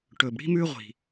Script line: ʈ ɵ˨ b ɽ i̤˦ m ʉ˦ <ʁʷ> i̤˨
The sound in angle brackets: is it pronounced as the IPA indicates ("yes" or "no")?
yes